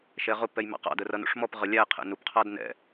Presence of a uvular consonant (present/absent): present